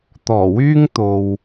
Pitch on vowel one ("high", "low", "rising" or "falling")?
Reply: low